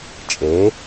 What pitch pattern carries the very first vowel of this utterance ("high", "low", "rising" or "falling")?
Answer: rising